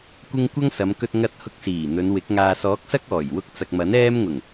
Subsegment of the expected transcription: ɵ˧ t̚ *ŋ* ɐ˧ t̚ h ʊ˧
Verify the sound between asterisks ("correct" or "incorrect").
correct